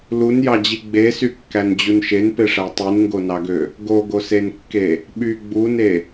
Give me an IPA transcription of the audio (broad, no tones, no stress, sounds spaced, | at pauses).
l u n j ɑ d͡ʑ i ɡ͡b e s y kː æ n d͡ʑ u n ʃ e n p e ʂ æ tˤ i n ŋ ɡ o n ɑ ɡ ø | ɡ o ɡ o s e n kː e | ɓ y ɡ͡b u n e